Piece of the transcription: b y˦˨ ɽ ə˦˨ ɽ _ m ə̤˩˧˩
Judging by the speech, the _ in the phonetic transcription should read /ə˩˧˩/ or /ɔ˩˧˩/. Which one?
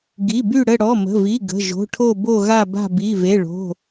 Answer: ɔ˩˧˩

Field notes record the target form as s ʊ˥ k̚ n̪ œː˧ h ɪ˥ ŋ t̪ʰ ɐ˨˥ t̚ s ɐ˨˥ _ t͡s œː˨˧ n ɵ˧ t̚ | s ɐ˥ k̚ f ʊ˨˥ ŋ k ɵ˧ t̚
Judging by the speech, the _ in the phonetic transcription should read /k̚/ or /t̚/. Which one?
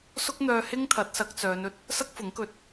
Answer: k̚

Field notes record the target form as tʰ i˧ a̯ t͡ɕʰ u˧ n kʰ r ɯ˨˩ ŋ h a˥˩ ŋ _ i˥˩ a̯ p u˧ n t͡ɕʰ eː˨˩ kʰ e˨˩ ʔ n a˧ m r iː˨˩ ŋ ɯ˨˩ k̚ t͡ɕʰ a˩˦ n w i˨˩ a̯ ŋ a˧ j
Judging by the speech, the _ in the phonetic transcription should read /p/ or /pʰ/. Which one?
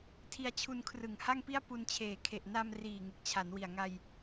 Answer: p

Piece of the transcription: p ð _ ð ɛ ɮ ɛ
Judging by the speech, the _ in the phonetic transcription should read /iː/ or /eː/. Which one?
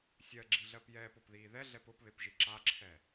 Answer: iː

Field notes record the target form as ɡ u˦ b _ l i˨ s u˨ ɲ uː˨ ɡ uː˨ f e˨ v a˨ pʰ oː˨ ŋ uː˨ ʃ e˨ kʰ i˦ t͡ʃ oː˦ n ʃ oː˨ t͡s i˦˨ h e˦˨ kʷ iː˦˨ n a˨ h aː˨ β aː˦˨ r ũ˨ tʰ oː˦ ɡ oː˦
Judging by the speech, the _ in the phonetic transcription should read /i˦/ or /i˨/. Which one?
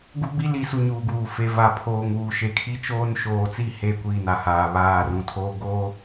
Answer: i˦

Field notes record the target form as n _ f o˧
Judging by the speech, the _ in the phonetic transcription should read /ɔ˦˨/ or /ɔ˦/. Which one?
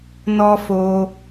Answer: ɔ˦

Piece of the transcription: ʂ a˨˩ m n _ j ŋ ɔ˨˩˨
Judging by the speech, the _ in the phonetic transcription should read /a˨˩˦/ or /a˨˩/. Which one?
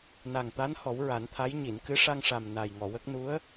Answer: a˨˩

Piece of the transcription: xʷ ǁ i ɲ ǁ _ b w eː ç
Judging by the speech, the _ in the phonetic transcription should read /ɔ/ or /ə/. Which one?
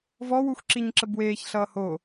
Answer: ə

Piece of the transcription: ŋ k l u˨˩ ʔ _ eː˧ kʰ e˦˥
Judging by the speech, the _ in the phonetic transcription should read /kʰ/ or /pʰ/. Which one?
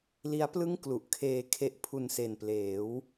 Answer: kʰ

